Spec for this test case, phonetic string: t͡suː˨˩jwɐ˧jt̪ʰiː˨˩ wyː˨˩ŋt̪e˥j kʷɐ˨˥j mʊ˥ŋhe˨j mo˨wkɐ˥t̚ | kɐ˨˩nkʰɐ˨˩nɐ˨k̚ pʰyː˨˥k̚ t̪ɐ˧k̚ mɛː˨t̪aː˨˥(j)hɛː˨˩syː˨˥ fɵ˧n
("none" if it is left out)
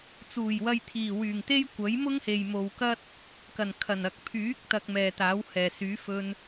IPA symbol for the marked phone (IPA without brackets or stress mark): w